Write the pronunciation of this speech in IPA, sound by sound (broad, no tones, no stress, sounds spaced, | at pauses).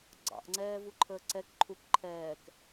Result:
ɡ͡ǀ ɑ̰ ʔ ŋ͡ǀ ɛː v u ǃʰ əː ǀ ɛ k ǃʰ u k ǃʰ ɛː k